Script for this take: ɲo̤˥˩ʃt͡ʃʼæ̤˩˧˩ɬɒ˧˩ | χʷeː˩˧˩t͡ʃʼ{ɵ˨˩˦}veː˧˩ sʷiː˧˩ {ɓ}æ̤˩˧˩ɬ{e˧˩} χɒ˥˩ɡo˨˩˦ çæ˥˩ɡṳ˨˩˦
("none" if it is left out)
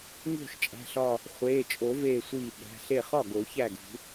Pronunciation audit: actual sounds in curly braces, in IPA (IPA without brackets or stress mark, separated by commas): o˨˩˦, ɓ, e˥˩